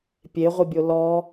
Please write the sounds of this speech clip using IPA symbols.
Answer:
pʲ e ʁʷ i bʲ o l ɔ

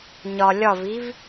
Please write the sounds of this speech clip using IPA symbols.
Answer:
ɲ ɒ lʲ ɒ v i v

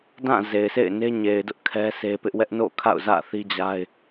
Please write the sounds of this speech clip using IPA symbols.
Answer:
d ã˦˨ z e˨ ɪ̯ sʰ ḛ˦˨ ɪ̯ n e˦ ɲ e˨ ɪ̯ d ʊ˦ ʔ kʰ ɛ˦ sʰ e˦ p ɪ˦ ʔ w ɛ˦ ʔ n o̰˦˨ kʰ a̰˦˨ ʊ̯ z ä̰˦˨ θ i˦ d͡ʑ a˦ ɪ̯

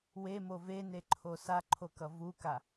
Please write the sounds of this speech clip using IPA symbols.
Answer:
w e m o v e n e ǃʰ o s a ǃʰ o k ʌ v u k a

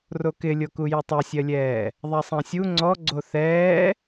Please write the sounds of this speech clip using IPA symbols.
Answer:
r o k ɪ lʲ o k u j ɪ tˤ ɛ sʲ ɜ lʲ ɛː | ðˤ a sˤ ã sʲ u ŋ͡ǀ ɔ ɡ͡ǀ o θ ɛː

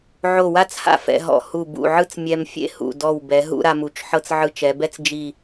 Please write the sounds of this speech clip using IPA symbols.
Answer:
ʕ o˧˩ w a˥˧ t͡s h a̰˥ f ɛ̰˧ ɦ ɔ̰˧˩ h u˧˩ b ṵ˧˩ ʕ ɯ˥˧ t͡s mʲ ɛ˧ m fʲ ḛ˥˧ h ṵ˧˩ d ɔ˧˩ w b ɛ˩˧ ɦ ṵ˥˧ ɾ a˧ m u˩˧ t͡ʃ ħ ɤ˧ t͡s ʕ ɯ˧ t͡ʃ ɛ˩˧ b ɛ˥ t͡s d͡ʒ i˧˩

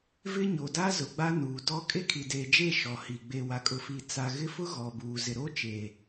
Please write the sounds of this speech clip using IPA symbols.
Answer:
v ɪ˦ ɲ o˨ d a˦ z ʊ˨ ɡ͡b a˦ n uː˨ d ɔ˦ kʼ e˦ kʰ i˨ d eː˨ d͡ʒ e˦˨ ʃ ɔ˨ h i˨ ɡ͡b e˨ w a˨ kʼ ʊ˨ f i˨ t͡s a˨ ɣ ɪ˦ f ʊ˦ ɣ ɔ˨ b uː˨ z ɪ˨ ɾ o˦ t͡ʃ e˨

